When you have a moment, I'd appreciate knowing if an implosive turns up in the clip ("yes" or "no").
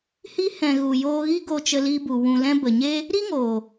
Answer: no